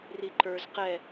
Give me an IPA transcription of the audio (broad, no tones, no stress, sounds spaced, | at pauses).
r i ǃ ə˞ z q ɛ